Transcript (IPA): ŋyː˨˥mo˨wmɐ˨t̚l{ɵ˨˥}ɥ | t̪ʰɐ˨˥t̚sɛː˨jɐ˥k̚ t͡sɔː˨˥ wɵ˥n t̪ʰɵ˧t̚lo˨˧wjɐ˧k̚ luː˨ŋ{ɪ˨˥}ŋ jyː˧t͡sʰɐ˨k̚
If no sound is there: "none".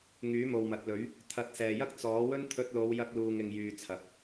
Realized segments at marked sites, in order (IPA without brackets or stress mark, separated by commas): ɵ˨˥, ɪ˨